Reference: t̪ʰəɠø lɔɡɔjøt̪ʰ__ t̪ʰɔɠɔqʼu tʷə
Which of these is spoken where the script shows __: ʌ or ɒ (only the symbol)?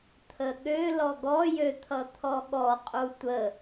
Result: ʌ